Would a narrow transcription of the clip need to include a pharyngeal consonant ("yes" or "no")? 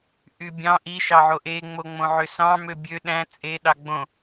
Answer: yes